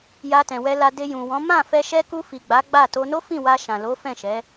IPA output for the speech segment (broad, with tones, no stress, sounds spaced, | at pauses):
j a˧ t ɛ̃˨ w ɛ˧ l a˧ d e˧ j ũ˨ w ɔ̃˨˦ m ã˦˨ f ɛ˧ ʃ ɛ˧ k u˧ f i˨ ɡ͡b a˨˦ ɡ͡b a˦˨ t o˧ n o˦ f ĩ˦˨ w a˧ ʃ ã˨ l o˨˦ f ɛ̃˦˨ ʃ ɛ˨˦